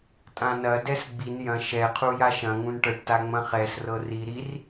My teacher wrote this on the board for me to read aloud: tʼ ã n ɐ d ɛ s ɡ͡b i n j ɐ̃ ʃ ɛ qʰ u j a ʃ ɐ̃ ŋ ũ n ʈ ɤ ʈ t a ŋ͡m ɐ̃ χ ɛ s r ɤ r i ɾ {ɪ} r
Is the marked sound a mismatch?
yes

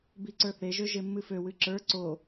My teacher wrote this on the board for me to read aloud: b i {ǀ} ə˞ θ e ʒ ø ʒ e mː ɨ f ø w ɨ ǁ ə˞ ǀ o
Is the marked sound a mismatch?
no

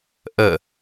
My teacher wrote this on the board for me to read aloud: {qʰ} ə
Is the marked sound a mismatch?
yes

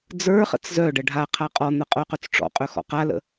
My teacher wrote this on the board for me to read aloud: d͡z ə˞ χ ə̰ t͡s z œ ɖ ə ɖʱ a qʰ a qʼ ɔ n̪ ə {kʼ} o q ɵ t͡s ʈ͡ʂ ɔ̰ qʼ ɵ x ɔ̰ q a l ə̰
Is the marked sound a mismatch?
yes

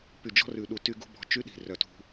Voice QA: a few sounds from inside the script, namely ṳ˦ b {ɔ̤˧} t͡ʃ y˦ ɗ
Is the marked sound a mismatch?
no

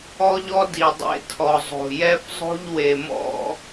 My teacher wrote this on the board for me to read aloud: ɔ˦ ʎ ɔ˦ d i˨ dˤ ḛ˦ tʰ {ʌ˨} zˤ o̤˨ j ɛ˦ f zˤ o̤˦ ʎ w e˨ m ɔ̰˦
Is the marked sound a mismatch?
yes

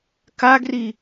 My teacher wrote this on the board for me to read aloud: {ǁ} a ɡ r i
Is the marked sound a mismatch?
yes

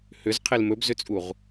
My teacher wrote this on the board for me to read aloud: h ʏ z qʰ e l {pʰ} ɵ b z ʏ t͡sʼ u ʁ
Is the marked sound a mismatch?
yes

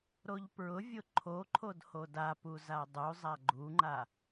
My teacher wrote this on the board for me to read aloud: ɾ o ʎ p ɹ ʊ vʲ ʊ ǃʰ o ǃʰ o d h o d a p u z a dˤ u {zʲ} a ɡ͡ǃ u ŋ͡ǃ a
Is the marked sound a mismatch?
yes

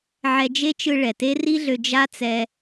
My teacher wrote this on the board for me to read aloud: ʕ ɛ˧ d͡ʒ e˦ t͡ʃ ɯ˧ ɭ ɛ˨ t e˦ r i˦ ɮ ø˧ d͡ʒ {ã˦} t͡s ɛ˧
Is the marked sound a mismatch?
yes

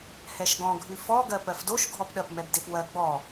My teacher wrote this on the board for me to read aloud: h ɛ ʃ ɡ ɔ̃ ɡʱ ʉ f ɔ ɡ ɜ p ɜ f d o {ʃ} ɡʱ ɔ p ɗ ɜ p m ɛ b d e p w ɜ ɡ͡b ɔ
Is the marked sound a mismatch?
no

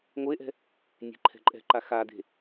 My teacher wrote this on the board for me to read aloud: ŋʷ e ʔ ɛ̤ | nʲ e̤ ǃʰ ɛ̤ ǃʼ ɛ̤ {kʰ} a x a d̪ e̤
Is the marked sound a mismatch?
yes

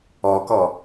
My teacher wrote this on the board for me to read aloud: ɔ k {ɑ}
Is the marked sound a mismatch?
yes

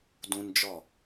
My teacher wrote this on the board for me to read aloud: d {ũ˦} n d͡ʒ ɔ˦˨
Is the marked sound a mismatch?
no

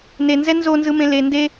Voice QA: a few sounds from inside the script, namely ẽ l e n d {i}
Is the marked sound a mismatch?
yes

